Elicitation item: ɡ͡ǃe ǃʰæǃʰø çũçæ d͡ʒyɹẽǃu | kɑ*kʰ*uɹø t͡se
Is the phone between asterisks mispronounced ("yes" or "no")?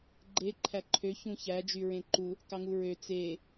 yes